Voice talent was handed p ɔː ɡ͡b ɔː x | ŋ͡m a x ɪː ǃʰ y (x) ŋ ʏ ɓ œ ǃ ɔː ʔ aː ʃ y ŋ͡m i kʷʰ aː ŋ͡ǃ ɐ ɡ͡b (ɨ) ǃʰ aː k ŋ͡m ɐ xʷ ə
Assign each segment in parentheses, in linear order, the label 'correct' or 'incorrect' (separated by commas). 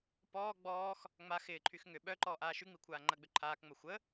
correct, incorrect